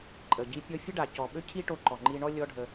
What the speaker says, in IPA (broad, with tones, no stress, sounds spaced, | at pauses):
ǃʼ ə˨ ɟ i˧ pʲ ɔ˧ fʲ ə˦ ɖ a˨ c ɔ˨ ɓ ø˦ cʰ i˦ ʈ o˧ ǃ ɔ˨ ŋ͡ǃ i˧ ɳ ɔ˦ lʲ ɔ˦ ɖʱ ə˧